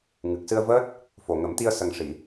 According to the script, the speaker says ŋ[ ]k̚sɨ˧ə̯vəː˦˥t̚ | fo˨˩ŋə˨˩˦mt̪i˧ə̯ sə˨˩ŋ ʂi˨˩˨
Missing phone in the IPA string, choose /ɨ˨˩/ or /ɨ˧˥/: ɨ˨˩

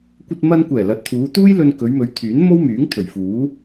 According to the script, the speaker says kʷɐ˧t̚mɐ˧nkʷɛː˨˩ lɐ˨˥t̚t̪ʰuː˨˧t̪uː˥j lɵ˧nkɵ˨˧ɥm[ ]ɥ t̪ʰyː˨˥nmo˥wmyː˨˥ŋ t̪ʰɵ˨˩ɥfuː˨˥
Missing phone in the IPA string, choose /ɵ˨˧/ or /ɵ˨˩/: ɵ˨˧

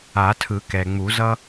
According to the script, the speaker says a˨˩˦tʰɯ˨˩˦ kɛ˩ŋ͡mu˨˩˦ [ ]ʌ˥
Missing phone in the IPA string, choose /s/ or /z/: z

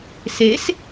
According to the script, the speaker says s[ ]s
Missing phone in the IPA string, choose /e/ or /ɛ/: e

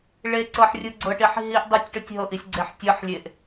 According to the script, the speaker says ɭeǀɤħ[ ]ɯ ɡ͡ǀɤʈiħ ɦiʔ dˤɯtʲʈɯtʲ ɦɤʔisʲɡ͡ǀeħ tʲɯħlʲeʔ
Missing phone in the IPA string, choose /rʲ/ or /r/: rʲ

